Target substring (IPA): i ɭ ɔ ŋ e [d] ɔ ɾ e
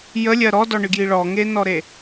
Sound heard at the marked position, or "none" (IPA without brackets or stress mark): n